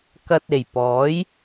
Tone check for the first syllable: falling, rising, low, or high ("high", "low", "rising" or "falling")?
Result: low